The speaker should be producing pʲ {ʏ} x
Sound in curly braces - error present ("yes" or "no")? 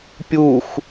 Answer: yes